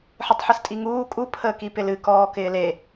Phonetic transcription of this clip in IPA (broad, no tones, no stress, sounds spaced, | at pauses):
ħ ɨ tˤ ħ ɨ s tʼ i ŋ uː kʼ u pʰ əː k i p ɪ l ɨ k ɔː k ɪː l e